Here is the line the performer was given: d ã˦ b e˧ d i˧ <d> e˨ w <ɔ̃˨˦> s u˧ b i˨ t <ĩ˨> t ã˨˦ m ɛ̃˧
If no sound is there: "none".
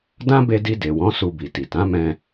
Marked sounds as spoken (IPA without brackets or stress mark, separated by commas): d, ɔ̃˨˦, i˨